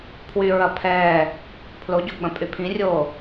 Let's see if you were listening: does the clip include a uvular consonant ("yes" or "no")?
no